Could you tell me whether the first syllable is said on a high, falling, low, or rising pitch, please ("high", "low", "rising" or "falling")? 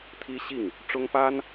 high